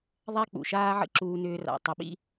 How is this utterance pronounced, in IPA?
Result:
ðˤ a˦ k͡p ṵ˨ ʃ aː˦ ʕ ə̰˦ ǁ uː˧ n ʏː˧ r a̰˨ tˤ ə˧ ɓ ḭ˦

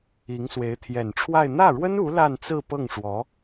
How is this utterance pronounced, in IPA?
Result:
i˧˥ ŋ s w e˧˥ ɪ̯ t̪ʰ j ɛ˨˩ n ʈ͡ʂʰ w a˥˧ ɪ̯ n̪ ä˥˩ ɻ w ə˥ n u˧˥ l a˥˧ n t͡s ɹ̩˥˧ p ɤ˥˩ ŋ ʂ w ɔ˧˥

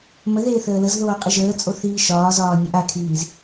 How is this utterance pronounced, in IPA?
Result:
m ə ð eː θ əː l ə z ð oː qʼ i ʒ əː t͡sʼ o θ iː ʃ ɒː z ɒː nʲ ə ʔ a kʰ iː z

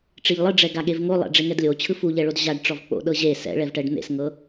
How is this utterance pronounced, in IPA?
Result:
ʈ͡ʂ i ʎ lˠ ɯ ɖ͡ʐ ɛ ɡ a ɠ e v ŋ o lˠ ɛ̰ ɖ͡ʐ e ŋ ɛ d lʲ o t͡ɕʰ ɯ f u ʎ ɛ ɭ o d ʑ a ɖ ʈ͡ʂ ɔ v k͡p o̰ ɗ ɤ ʑ e s ɛ̰ ɭ ɛ v ʈ ɛ ɖ n̪ ḛ s ŋ ɤ

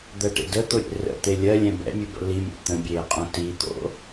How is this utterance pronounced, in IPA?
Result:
d̪ ɜ ʈ ḛ d ə t̪ o ɾʲ ḛ r ə̰ t̪ e lʲ ɜ lʲ ɛ̃ b ɛ̰ mʲ ʉ b ə̰ l i mʲ ɛ̰ t̪ ə̃ bʲ eː qʼ õ t i t̪ o̰

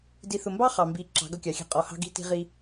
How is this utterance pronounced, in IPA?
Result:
d i˨ θ ʊ˨ m b ɑ˦ χ ɑ˨ m b i˨˦ ǁ ɑ̤˨˦ ɡ ʌ˦ kʲ ɑ˨ xʲ ɛ̤˦ qʼ ɔ˨ h ɑ̤˦ ɡ i̤˦ t i̤˦ ʁ i˦

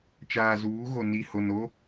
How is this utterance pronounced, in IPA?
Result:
t͡ʃ aː˨ z uː˨˦ ɣ o˨ n i˨ h o˨ n o˦

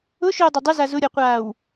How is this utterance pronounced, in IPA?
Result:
ʊ ʃ ʏː dˤ ʏ dˤ ʏ z a z ʊ ɾʲ ɔ qʷ aː w

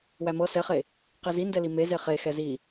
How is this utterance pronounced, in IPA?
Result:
w æ m ɤ s ɛ χ e | q e z i n d ɛ l i m e z e χ e x ɛ z i

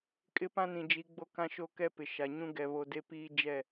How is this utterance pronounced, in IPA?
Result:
kʼ ɪ˦ p ã˦ n ĩ˨ d͡ʒ i˨˦ ɡ͡b o˦ k ã˦ ʃ o˦ k ɛ˦ p ɪ˨ ʃ a˨ ɲ ũ˦ ɡ ɛ˨ β o˨ d e˦ p iː˦ d͡ʒ ɛ˦˨

